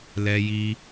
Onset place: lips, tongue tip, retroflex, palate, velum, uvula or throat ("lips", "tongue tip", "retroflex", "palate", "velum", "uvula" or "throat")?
tongue tip